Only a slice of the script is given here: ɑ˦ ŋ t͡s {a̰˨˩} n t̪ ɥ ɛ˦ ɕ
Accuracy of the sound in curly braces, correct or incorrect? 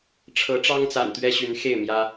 correct